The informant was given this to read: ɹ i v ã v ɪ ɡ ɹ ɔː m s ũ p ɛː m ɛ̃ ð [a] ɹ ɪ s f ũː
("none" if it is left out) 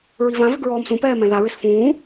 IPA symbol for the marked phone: a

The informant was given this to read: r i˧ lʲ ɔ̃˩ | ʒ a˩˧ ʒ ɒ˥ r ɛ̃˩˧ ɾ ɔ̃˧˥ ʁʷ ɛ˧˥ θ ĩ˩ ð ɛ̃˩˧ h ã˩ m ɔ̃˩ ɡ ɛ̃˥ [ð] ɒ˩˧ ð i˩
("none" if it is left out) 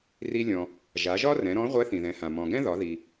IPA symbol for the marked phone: ð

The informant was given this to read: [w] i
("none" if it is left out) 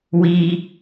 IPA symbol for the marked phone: w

